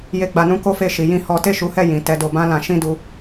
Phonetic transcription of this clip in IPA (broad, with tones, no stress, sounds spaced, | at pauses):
j e˧ ɡ͡b a˧ n ũ˦ k o˦ f e˦˨ ʃ i˨˦ j ĩ˦ h ɔ˦ t e˦˨ ʃ u˨˦ h ɛ˦˨ j ĩ˨ t ɛ˧ d o˧ b ã˦ l ã˧ ʃ ĩ˦ d u˧